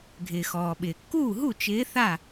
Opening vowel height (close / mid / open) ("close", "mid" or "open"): close